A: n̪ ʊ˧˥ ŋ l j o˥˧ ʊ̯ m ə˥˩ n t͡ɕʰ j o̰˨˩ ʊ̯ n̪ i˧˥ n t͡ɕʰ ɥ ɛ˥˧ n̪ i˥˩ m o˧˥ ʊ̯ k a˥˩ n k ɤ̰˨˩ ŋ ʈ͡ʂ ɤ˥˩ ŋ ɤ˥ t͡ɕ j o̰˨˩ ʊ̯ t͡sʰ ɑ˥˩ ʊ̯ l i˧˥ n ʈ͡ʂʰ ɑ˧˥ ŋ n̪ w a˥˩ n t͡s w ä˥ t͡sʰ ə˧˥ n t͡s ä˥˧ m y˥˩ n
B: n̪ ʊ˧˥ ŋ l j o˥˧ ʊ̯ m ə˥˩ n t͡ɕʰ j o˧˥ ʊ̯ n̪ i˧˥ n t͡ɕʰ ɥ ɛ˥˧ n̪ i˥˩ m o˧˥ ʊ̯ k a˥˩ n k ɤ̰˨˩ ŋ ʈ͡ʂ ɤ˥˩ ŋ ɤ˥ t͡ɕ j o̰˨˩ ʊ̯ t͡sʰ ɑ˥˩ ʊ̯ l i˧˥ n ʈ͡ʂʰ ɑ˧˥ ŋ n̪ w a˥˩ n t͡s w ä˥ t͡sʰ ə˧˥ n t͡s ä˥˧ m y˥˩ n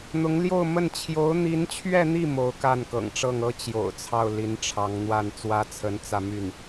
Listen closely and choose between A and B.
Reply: B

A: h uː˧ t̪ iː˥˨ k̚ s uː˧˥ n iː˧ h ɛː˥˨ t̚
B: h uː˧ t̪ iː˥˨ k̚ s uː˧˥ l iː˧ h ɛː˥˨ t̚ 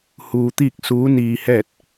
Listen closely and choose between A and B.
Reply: A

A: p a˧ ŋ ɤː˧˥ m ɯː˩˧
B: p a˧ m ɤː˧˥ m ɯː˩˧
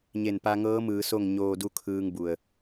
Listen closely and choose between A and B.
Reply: A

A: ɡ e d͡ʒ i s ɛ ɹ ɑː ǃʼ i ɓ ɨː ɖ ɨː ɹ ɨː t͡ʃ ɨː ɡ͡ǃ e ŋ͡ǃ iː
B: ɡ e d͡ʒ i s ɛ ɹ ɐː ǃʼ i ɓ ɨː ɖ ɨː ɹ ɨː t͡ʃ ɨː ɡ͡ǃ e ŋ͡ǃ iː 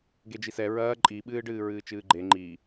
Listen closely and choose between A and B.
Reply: B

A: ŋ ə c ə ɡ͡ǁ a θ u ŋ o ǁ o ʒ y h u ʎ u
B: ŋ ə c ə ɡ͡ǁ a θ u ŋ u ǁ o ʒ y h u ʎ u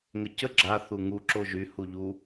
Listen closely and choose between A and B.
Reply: B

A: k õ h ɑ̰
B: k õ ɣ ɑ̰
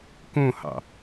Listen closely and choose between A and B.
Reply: A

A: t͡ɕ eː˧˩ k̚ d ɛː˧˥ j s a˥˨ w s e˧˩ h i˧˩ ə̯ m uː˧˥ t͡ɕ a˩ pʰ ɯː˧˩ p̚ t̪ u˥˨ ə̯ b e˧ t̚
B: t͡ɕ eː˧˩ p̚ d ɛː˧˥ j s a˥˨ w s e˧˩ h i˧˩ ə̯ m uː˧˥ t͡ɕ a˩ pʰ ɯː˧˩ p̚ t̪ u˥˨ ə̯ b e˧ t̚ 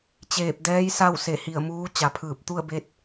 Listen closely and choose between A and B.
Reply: B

